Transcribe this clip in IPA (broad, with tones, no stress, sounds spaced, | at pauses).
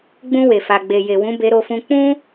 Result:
ɡ͡b ũ˧ w e˨ f a˨ ɡ͡b e˨ j e˨ w ũ˨˦ b e˧ ɾ o˧ f ũ˧ k͡p ũ˦